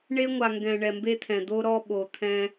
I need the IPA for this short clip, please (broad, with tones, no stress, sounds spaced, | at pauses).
ɳ e˦ ŋʷ a˨ ŋ ɡ ɛ̃˨ ɳ ɛ˨ m b e˦ t̪ʰ ɛ̃˨ d̪ o˦ ɾ ɔ˦ ɓ o˨ t̪ʰ ɛ̃˦